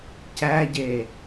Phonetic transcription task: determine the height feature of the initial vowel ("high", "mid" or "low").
low